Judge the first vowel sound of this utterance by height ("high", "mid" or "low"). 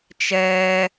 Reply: mid